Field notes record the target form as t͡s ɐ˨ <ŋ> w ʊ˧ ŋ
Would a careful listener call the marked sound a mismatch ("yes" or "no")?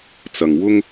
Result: no